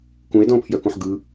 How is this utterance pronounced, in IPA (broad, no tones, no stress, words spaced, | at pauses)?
kũe̯dɔ̃o̯pʰjœkũħ ɡɯ